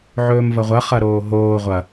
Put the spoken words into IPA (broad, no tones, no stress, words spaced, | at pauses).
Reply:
ʕɵːmvɐʁʷɐ χɐɾoːɦoː ʁʷɐ